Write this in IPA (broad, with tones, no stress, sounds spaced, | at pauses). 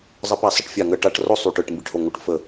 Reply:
zˤ ə˧˩˧ p a˧˩˧ sˤ ə˧˩˧ ʈ fʲ a˨˩ ŋ ə˨˩ ʈ a˧˩˧ ʈ r o˦˨ sˤ y˨˩ ʈ ɯ˨˩ ʈ m b i˨˩ ʈ h o˨˩ ŋ o˨˩ ʈ f ə˨˩